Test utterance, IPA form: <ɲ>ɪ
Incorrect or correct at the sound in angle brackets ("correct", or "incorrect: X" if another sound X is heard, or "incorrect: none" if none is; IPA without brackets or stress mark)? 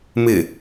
incorrect: m